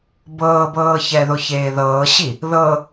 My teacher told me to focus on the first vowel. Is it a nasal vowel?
no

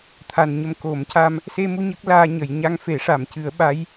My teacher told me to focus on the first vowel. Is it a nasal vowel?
no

